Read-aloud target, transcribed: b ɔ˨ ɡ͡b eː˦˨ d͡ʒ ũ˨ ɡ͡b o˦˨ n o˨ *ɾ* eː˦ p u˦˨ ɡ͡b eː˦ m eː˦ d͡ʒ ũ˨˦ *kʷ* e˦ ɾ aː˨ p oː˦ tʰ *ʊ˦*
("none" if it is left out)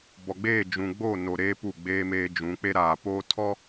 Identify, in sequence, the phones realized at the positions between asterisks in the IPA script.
ɾ, k͡p, ɔ˦

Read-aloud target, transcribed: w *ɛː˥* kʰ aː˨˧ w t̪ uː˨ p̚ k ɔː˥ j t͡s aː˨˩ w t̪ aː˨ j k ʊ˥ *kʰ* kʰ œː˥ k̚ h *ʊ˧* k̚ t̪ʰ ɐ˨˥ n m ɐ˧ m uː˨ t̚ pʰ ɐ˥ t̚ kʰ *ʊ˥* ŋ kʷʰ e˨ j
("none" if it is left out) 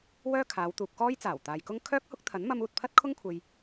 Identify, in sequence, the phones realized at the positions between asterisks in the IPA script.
œː˥, ŋ, ʊ˥, ʊ˥

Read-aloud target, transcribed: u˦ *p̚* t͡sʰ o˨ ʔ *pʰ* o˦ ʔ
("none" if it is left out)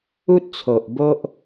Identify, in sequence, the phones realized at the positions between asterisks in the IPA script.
t̚, b

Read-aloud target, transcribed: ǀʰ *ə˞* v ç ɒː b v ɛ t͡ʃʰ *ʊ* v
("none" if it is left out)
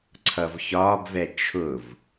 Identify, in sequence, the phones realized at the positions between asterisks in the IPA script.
ʌ, ʊ

